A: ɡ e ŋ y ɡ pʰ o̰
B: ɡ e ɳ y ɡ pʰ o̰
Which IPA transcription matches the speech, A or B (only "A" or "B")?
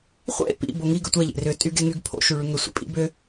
A